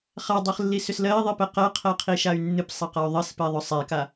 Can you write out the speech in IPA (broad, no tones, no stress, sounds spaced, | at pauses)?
χ a dˤ ɜ χ lː i s ʏ s l ɜ i̯ ðˤ i p ɛ q ɜ qʰ ɜ qʰ i ʃ a y̯ nː ɨ p sˤ ɘ q a y̯ ðˤ ɘ s p ɛ ðˤ ʏ sˤ ɛ k a